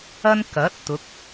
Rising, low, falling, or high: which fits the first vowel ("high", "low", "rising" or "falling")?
high